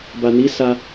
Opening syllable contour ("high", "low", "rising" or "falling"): low